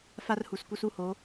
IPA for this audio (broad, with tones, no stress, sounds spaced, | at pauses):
f a˦ r h u˨ s k u˦ s u˦ h o˨˦